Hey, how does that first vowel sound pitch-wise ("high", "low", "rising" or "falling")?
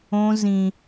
high